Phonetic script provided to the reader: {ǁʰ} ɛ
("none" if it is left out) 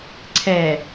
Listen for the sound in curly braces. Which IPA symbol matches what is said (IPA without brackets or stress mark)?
ǀʰ